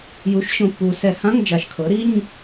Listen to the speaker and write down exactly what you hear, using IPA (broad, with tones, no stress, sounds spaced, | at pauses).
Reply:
j u˩˥ ʃ ɕ õ˨˩ pː u˨˩ s ɛ˧˩˧ h ã˧˥˧ ŋ d͡ʒ a˨˩ ʃ kʰ ɤ˩˥ ɾ i˧˥˧ ɲ